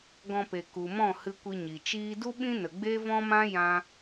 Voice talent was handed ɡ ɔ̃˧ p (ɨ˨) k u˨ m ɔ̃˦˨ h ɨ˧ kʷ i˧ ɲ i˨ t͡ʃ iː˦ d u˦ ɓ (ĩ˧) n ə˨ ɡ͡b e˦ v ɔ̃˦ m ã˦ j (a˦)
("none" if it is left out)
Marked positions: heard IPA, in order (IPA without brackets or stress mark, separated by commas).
e˨, ĩ˦, ã˦